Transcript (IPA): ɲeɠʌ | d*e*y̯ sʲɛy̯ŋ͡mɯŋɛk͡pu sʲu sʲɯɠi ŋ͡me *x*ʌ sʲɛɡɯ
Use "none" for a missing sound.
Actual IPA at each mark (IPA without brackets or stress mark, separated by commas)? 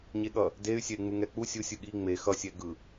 e, x